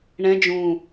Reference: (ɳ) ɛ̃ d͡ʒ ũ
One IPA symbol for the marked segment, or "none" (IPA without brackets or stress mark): ɳ